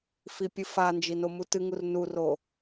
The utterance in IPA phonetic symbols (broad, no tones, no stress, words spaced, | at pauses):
fipʲɨfand͡ʒi nomutɨŋur nuro